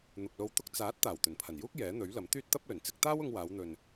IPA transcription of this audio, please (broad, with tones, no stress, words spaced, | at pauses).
n̪ʊ˨k̚lo˧wt̪ʊ˥k̚ t͡saː˨˥t̚ t̪aː˨˩wt̪ɵ˨˩npʰɐ˨˩njuː˥k̚ jɛː˨˥n̪ɵ˨˥ɥlɐ˨˥m t̪yː˥t̚t̪ɐ˥p̚lɵ˨˩n t͡sɪ˥k̚ t̪aː˥wʊ˧ŋwaː˨˧wn̪ɵ˨n